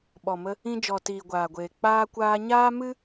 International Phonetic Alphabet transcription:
ɓ ɔ˨ m ə˧ | ĩ˧ d͡ʒ ɔ˨ t iː˨ ɡʷ aː˨ ɡʷ eː˨ k͡p aː˧ kʷ aː˧ ɲ aː˦ m ɨ˦

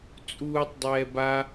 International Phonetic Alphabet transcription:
t͡sʼ uː tˤ dˤ ɛː b a

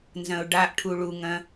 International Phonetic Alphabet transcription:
n z ɐ̃ ʊ̯ ɖ a ʔ ʈʰ u ɭ u ŋ ɐ̃

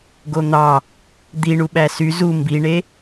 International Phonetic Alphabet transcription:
ɡ o n̪ ɑ | d̪ i ɳ u ɓ æ s y z u m b i ɳ e

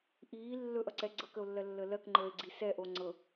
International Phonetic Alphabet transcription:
ʔ iː lː ɵ ʔ ʌ ǀ ɛ ɡ͡ǀ ɤ k ə o̯ lː ɜ lː əː l ɜ k ŋ͡ǃ əː e̯ ɡ͡ǀ i s ɛ ʔ o ŋ͡ǀ ɤ

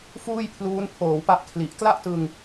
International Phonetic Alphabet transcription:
f uː˥˩ j pʰ l uː˦˥ n pʰ oː˩˦ w p a˦˥ ʔ kʰ l i˨˩ ʔ k l a˥˩ ʔ t ɯ˧ ŋ

